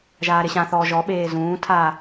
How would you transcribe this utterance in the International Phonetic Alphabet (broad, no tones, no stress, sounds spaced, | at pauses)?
ʒ aː ɾ ɪ ɕ ã θ ɔː ʒ ɔ ɓ eː z ũː tʰ aː